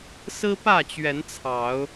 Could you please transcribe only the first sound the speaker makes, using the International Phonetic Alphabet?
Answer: s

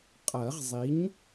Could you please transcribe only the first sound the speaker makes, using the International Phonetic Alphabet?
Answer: qʼ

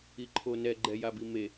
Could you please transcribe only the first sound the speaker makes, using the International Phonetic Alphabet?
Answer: i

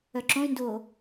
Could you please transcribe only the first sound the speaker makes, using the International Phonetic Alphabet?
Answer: œ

